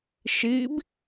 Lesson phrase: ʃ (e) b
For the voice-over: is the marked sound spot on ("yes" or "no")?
no